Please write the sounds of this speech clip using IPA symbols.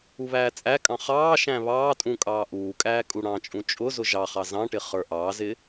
uβæːt͡sʼækʼɑ̃ χɑːʃæ̃ βɑːtʼũ kʼɑːʔuːkʼæː kʼuɽɑ̃t͡ʃʼũ t͡ʃʼʊ zʊʒɑχɑ zɑ̃ʈɪ χə˞ʔɑːzɪː

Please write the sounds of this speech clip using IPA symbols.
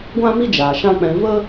ɡʷã˦mi˦d͡ʒaː˨ ʃã˦k͡pɛ̃˧ və˦

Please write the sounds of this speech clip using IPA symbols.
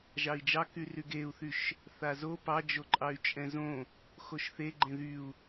ʒɑi̯d͡ʒɑ kyryɡeu̯θyʃ | θazo pɑd͡ʒoǃʼɑy̯ t͡ʃʼɛ̃zõ | xoʃθeɡ͡ǃẽ ðyu̯

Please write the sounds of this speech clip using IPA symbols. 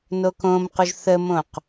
nokõmquʒ θəmõq

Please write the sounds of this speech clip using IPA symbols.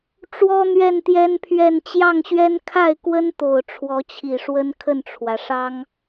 ʈ͡ʂwɔ˥n̪ɥɛ˥˩nt̪jɛ˥npʰɥɛ˥˧n t͡ɕjɑ˥˩ŋɕɥɛ˥n kʰa˥˩ɪ̯kwə˥nt̪o˨˩ʊ̯ ʈ͡ʂʰwɔ˧˥t͡ɕʰi˨˩ʂwə˥n kʰə˥˩nʈ͡ʂʰwä˩ʂɑ˥ŋ

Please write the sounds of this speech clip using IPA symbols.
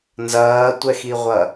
nzɐːtʷɛxiʁʷɐ

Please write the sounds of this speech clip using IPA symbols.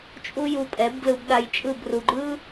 t͡ʃʼu˦ju˧pʼɛ˨˦bɡlɯ˧b ɗa˧jt͡ʃʼɯ˦˨b ru˨ɡ͡ǃɯ˦

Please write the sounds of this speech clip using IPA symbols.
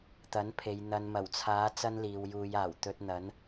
t̪ɐ˨˥npʰe˨j n̪ɐ˨nmɐ˨˩wt͡sʰaː˨˥ t͡sɐ˥nliː˨wjuː˨˧jaː˨˩w t̪ɵ˧t̚n̪ɐ˨˥n

